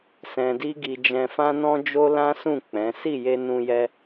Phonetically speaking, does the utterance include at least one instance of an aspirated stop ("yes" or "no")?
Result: no